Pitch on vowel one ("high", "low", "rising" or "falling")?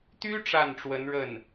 high